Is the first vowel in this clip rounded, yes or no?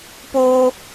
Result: yes